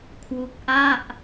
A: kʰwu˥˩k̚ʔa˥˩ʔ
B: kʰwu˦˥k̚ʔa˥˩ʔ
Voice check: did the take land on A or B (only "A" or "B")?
B